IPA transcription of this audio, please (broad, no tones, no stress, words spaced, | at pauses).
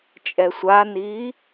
t͡ʃʼɛsʷaniː